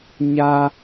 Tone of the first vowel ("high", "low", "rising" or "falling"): high